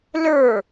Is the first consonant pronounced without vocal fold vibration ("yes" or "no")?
no